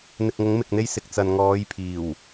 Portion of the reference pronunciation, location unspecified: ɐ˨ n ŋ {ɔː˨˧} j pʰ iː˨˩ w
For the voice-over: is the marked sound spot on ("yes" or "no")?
yes